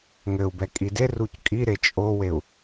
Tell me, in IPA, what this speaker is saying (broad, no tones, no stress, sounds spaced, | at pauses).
ŋ ɘ u̯ b ɛ kʼ i d e r u c kʼ i ɾ e t͡ʃʼ o w e u̯